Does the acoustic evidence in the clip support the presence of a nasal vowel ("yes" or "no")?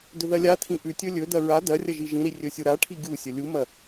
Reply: yes